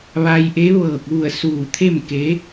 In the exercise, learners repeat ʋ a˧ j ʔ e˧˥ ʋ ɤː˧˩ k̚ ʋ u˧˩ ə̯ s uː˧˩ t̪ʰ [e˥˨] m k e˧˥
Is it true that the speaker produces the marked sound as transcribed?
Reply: yes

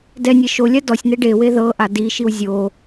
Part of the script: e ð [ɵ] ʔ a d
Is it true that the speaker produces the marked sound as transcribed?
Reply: no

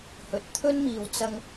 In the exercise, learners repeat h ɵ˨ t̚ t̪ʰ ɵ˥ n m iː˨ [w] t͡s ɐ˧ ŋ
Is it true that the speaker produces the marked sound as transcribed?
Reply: yes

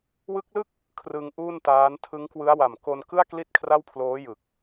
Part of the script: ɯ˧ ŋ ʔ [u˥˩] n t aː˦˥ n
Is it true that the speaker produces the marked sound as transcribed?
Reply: no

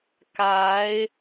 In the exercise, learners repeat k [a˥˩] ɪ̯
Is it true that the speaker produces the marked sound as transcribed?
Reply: no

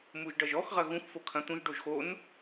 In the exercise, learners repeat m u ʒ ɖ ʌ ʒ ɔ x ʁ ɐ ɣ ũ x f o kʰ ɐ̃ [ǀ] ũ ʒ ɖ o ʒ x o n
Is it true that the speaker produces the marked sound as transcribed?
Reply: no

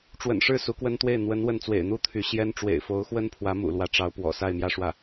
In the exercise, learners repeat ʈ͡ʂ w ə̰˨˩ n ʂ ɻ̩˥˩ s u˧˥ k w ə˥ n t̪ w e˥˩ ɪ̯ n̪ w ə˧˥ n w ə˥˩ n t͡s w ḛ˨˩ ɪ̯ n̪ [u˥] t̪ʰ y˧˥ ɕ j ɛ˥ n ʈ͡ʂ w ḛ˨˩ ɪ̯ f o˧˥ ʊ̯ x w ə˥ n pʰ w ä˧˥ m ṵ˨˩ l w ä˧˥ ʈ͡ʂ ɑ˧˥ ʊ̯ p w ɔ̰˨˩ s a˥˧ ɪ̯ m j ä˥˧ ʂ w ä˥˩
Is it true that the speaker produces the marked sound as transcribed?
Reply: no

